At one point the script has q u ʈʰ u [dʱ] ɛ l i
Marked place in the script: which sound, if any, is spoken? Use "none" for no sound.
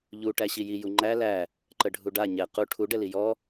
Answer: ɖ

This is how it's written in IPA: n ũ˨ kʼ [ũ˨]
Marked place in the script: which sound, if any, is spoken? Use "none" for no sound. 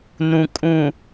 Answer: ũ˨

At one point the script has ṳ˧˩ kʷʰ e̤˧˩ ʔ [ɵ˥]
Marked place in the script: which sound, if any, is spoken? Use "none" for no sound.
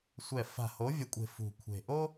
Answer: o˥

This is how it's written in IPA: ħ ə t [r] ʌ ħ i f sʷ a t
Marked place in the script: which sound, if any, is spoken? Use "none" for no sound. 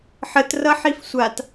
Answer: r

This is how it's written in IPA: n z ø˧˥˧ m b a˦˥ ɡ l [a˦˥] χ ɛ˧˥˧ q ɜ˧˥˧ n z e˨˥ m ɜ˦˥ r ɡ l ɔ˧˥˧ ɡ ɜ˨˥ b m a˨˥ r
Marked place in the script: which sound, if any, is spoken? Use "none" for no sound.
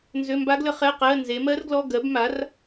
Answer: ə˦˥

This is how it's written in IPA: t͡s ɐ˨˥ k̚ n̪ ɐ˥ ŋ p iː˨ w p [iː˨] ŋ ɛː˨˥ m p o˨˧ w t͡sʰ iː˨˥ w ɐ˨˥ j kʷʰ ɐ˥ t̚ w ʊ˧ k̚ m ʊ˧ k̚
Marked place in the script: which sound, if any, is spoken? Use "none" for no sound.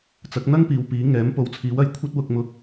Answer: iː˨˥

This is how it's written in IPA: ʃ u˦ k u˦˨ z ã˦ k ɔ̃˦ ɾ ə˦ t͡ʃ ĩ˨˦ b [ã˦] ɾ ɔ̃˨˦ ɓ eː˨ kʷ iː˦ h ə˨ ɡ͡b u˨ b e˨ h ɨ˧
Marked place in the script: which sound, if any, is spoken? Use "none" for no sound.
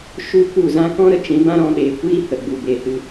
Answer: ã˦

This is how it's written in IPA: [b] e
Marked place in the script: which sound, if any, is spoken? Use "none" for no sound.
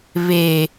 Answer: β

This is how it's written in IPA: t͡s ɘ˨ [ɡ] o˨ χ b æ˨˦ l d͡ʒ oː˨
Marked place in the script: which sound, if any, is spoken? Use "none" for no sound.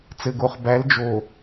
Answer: ɡ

